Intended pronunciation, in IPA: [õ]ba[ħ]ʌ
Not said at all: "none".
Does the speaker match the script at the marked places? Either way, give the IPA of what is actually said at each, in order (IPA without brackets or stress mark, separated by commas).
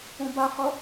õ, χ